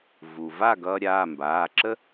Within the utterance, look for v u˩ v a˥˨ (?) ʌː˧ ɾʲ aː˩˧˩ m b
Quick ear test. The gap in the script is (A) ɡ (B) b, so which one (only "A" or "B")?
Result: A